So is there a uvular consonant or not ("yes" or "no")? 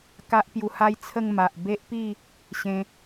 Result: no